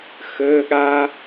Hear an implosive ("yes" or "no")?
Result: yes